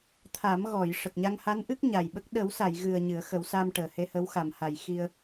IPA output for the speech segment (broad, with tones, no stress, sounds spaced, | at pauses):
t̪ʰ a˨˩˦ m ɣ ɔ˨˩˨ j ʂ ə˨˩ k̚ ɲ a˧ ŋ h a˧˥ n ʔ ɨ˦˥ k̚ ɲ a˨˩ j ɓ ə˦˥ k̚ ɗ ə˨˩˦ w s a˨˩˨ j ɣ ɨ˨˩ ə̯ ɲ ɨ˨˩˦ ə̯ x ə˨˩˦ w s a˧ m ʈ əː˨˩˨ h e˧ h ə˧˥ w x a˨˩ m h a˨˩˨ j x i˧ ə̯